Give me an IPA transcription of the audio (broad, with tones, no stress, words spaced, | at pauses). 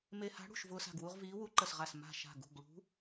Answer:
me˧ha̤˧˥ɽṳ˧˩ʃ vʊː˧sa̤˧˩ɡwu˧ʁ viː˧˥wu˧˥ǃə˧˩sʁa˧˩s ma̤˧˩ ʃa̤˧˩ ɡṳ˧˩ɡɭṳ˧˥